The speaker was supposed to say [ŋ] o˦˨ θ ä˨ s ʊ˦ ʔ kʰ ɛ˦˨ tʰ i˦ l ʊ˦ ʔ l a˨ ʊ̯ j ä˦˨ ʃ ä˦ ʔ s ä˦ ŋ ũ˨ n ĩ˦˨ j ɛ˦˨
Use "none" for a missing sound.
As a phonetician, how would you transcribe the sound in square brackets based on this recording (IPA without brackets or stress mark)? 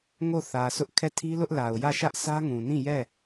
ŋ